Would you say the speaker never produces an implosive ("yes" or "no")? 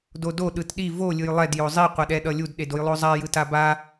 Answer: no